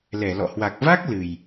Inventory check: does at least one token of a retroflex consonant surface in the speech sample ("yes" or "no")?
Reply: no